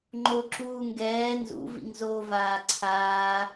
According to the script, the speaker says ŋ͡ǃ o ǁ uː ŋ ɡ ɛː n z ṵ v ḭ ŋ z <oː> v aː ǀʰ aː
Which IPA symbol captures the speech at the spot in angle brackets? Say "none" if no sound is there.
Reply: oː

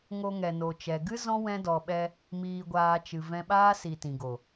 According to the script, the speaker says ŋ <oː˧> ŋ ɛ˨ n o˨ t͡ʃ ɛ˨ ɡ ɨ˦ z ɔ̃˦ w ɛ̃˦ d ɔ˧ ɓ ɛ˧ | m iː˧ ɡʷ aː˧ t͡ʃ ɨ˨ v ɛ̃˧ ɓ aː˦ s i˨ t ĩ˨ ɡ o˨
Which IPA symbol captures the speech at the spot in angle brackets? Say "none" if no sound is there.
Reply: o˧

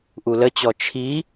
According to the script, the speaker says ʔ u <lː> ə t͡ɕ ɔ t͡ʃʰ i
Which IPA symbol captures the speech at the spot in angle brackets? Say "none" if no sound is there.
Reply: l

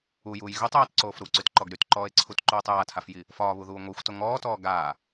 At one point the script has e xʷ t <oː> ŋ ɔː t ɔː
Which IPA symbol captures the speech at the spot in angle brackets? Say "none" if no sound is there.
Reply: o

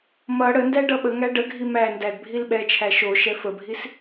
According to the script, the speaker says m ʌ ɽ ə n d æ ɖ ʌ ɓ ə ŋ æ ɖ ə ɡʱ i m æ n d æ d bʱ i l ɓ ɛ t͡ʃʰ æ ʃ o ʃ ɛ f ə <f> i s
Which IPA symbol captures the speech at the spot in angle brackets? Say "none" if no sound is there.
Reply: bʱ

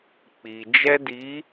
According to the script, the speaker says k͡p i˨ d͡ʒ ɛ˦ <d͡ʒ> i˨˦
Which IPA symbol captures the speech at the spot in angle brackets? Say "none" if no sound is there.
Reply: d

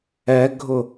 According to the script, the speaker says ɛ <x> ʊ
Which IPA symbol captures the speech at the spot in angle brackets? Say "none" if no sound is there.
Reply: ɡʱ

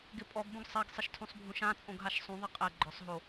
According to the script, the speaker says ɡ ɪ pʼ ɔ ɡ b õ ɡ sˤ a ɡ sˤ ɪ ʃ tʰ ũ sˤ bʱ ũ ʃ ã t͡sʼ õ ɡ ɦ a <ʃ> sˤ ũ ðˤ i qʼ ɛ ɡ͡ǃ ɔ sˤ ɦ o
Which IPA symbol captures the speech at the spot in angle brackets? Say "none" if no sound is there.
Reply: ʃ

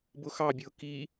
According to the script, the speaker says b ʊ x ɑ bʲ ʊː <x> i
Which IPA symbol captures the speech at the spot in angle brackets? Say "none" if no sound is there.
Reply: k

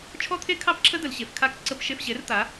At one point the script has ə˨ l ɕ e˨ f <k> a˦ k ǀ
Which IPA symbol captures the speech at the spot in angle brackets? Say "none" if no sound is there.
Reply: kʰ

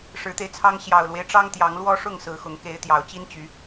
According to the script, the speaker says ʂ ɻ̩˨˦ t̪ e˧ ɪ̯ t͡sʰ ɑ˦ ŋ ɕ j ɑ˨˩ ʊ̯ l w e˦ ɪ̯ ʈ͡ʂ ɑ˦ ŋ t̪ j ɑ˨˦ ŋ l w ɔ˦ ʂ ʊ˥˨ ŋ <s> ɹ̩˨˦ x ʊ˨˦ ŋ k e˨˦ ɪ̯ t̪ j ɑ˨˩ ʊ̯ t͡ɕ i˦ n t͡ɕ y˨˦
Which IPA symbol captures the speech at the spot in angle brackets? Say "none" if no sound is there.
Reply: s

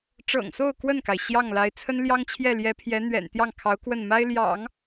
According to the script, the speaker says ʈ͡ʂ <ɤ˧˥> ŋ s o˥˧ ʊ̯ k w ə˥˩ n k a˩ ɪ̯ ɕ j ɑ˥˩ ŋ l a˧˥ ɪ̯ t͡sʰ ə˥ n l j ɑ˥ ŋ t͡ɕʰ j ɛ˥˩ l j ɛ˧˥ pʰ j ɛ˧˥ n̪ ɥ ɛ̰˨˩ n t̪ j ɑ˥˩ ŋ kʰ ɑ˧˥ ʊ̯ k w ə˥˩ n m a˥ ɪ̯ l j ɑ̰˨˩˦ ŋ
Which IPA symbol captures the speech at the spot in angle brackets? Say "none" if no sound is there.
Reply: ɤ̰˨˩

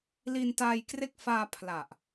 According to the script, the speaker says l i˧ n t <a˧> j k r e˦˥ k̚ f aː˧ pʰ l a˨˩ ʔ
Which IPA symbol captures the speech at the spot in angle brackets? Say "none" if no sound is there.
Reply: a˧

